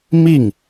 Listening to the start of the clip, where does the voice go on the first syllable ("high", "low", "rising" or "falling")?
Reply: falling